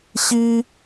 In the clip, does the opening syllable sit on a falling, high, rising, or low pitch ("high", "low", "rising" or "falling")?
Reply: high